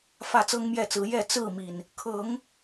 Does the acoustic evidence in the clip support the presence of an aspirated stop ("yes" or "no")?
yes